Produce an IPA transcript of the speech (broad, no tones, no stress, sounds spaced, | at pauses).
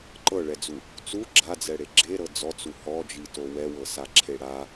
ǃ ɤ ɭ ɛ d͡z u | t͡s u ɡ͡ǁ a d͡z ɛ ɽ e ɡ͡ǁ e ɾ ɤ d͡z ɔ t͡s u h ɔ d͡ʒ i t o w ɛ w ɤ s a ǁʰ e ɽ a